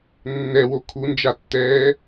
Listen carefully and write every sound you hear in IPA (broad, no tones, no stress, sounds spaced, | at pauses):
nː ɛ w o kʰ u n d͡ʒ a tː ɛː